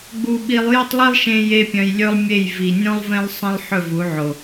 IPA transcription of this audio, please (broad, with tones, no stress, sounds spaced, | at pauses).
ɡ͡b u˧ ɓ i˧ lˠ j o˦ tˤ lˠ i˦ lˠ ʃ ẽ˧ j e˦ pʲ œ̃˧ j lʲ ɵ˦ lˠ mʲ e˦˨ j v i˨ nʲ õ˦ lˠ v ẽ˦ lˠ sˤ ə̃˧ lˠ ħ ɵ˦˨ v u˨˦ ʕ o˨